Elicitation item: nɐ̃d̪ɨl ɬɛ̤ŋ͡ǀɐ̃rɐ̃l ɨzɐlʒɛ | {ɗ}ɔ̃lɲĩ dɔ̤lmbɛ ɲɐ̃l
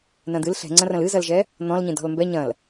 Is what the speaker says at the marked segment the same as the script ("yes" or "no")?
no